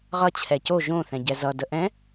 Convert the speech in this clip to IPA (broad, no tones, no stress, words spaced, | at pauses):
ʁʌ t͡ɕʰɛco ʒõ θɛ̃ɟɛzʌ dəʔɛ̃